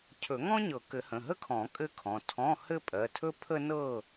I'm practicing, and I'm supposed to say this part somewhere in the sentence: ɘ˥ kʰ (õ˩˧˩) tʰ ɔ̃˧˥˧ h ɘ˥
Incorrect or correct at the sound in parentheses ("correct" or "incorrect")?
incorrect